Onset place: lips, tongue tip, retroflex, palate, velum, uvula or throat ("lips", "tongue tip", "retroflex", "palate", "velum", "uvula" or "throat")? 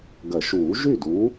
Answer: velum